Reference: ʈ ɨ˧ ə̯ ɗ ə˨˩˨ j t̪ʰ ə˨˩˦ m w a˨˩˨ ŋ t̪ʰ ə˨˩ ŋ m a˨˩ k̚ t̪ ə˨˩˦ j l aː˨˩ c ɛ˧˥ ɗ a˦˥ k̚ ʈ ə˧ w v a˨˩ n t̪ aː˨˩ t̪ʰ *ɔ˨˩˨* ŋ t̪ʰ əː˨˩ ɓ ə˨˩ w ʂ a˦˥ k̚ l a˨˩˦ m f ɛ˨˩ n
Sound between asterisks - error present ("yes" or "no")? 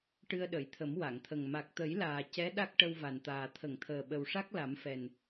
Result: yes